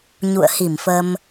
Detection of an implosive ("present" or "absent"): absent